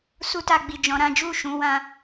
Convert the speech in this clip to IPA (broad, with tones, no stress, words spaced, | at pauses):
su˦ta˧ ɡ͡bi˨ d͡ʒɔ̃˧ɾã˦ d͡ʒu˦˨ʃũ˧ wã˧